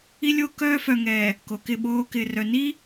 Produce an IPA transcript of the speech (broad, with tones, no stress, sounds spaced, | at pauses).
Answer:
i˦ lʲ o˦ k œː˦ f œ˨ ŋ ɛː˨ | k o˨ k ɪ˦˨ ɓ oː˦ k ɪː˨ r œ˨ n i˦